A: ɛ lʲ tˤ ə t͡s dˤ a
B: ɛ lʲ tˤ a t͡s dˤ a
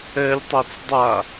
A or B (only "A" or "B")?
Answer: B